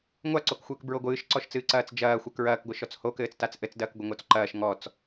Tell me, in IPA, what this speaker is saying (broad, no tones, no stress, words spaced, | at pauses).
ŋʷaǀokxʷɘːk bɹoɡʷɨːʃǀɔʃt͡sɨː ǀɐːt͡sd͡ʒɐːxʷɘ kɹɐːkɡʷɨʃɔt͡s hokɘːt͡stat͡s ʔɘt͡sdɐːk ɡʷɐŋot͡sǃɐːʃ ŋɔt͡s